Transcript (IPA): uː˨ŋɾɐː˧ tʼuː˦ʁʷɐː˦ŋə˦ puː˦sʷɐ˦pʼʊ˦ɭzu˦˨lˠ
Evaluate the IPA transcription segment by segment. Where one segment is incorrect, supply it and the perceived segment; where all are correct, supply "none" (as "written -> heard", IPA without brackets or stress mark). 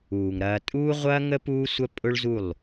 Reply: none